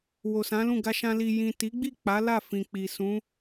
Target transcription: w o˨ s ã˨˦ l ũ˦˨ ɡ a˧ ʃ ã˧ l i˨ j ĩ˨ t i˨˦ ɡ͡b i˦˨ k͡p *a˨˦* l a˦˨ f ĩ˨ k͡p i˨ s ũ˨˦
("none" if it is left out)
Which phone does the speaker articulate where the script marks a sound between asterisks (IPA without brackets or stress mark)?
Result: a˨˦